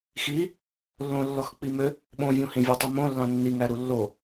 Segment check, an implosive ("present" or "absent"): present